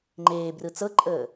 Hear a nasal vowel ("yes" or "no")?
no